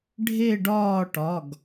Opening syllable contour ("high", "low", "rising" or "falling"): falling